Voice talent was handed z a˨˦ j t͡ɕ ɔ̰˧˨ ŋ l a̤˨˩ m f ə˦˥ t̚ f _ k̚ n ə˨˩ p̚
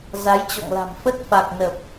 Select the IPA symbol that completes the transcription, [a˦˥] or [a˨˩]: a˨˩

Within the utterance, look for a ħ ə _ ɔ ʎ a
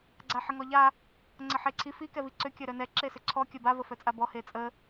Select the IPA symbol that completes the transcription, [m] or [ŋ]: ŋ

